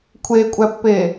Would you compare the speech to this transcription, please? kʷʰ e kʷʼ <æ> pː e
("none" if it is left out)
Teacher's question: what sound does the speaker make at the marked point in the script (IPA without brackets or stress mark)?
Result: æ